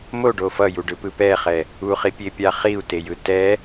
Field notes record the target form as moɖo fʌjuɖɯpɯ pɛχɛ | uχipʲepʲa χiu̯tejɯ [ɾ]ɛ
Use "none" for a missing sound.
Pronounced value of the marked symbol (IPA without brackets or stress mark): t